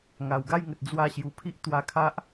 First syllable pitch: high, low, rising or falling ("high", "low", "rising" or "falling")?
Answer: low